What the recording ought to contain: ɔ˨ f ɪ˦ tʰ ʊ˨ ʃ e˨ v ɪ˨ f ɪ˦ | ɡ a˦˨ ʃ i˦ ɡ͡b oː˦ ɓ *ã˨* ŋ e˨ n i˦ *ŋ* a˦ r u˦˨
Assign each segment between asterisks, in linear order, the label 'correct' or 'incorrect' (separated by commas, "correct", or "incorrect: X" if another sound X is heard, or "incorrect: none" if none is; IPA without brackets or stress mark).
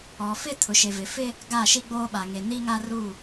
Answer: incorrect: a˨, correct